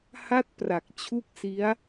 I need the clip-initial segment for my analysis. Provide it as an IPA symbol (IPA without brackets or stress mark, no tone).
h